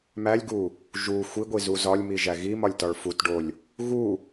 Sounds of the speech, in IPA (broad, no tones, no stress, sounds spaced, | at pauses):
m æ lʲ ɡ u | ʒ u xʷ i ɡʷ i z u z ɒ lʲ m i ʒ æ ɣ i m ɒ lʲ t ɒ ɭ f u t ɖ o lʲ | ɣ u